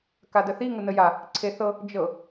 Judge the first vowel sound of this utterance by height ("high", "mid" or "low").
low